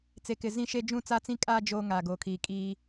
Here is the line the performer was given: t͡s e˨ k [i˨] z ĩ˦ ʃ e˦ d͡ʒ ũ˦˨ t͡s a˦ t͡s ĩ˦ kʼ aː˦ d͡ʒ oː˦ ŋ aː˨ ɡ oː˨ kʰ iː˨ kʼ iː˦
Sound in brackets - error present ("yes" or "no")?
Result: yes